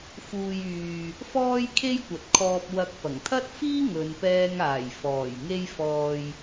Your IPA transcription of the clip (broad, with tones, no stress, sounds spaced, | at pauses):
f uː˨ j yː˨ | f ɔː˥ j kʰ e˥ j kʷ ɐ˨˥ t̚ kʰ ɔː˧ p̚ w ɐ˧ k̚ p ɐ˨˩ ŋ t̪ʰ ɐ˥ t̚ f iː˥ ŋ ɵ˨˧ n p ɛː˧ ŋ aː˨˩ j f ɔː˨˩ j ŋ e˧ j f ɔː˨ j